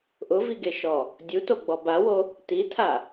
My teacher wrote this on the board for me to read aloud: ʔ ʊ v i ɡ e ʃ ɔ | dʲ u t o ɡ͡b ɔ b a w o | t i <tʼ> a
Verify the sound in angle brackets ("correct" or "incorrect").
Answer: incorrect